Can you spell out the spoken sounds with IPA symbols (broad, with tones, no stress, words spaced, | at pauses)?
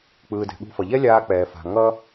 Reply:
k͡pɯː˩dɛ̤˩ɠṳ˧fʌ˩ ʎɛ˥ lʲaː˧ k͡pɛː˩fa̤˩ ŋʌ˥